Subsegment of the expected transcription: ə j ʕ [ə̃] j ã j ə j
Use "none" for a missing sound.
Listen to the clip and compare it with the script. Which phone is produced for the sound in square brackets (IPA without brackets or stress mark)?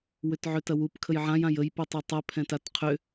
ã